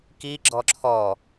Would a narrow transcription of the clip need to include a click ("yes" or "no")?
yes